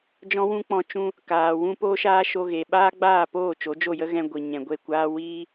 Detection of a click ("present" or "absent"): absent